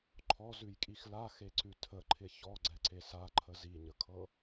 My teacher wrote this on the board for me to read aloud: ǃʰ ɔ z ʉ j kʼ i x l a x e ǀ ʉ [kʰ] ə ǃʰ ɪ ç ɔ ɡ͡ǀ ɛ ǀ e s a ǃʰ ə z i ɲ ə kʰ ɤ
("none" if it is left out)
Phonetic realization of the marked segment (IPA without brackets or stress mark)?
tʰ